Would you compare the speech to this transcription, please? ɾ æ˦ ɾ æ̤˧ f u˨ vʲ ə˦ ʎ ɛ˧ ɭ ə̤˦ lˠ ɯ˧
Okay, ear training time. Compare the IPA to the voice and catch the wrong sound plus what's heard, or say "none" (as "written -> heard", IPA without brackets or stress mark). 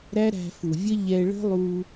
ɯ˧ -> u˧